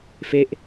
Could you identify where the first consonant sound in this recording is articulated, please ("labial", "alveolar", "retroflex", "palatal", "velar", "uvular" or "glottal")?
labial